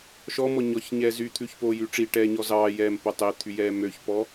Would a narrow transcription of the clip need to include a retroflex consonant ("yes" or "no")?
yes